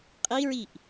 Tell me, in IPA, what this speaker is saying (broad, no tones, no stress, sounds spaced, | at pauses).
qʼ i ɹ i ʔ